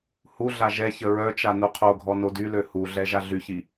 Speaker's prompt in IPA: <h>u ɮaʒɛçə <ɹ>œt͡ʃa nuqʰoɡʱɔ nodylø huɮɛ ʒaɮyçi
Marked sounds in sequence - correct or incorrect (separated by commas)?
correct, correct